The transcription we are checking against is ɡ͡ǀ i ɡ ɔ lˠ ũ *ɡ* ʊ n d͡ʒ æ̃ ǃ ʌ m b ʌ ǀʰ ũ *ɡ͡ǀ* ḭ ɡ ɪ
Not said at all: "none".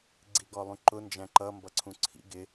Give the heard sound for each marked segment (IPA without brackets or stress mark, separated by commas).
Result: ǃ, ǀʰ